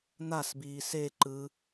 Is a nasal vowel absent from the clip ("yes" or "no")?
yes